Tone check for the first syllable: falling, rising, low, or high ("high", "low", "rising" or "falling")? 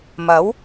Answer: rising